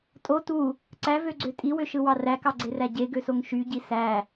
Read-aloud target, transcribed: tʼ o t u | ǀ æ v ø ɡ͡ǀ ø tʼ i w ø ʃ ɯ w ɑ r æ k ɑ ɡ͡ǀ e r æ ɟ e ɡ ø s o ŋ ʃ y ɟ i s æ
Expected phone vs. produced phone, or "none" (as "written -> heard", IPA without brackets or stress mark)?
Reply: none